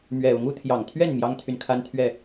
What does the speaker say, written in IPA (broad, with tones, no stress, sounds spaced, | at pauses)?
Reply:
m ɥ ɛ˨˩ ʊ˨˦ ŋ u˨˦ t̪ʰ j ɑ˨˩ ŋ t̪ʰ ɥ ɛ˥˨ n m j ɑ˦ ŋ t̪ʰ y˨ n kʰ a˦ n t̪ʰ ɥ ɛ˥˨